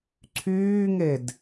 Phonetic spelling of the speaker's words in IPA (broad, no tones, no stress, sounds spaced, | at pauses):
ǀʰ yː ŋ e d